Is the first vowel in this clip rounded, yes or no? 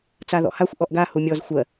no